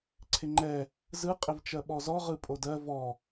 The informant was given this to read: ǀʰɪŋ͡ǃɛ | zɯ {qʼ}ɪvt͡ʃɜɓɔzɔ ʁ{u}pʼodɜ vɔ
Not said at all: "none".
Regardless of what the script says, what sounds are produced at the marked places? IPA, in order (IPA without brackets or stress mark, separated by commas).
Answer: qʼ, ɯ